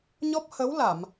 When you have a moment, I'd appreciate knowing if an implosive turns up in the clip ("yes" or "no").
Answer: no